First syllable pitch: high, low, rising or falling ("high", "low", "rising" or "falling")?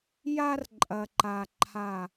high